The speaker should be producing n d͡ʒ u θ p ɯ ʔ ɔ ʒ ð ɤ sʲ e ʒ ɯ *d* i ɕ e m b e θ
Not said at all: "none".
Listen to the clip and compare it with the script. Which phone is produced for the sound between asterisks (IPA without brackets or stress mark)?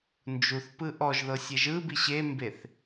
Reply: b